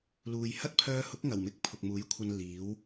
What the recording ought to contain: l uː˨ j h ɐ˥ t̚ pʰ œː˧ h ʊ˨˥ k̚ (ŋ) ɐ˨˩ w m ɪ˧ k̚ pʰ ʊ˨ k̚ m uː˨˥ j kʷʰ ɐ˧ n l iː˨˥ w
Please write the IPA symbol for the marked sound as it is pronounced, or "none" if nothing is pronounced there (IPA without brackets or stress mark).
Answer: ŋ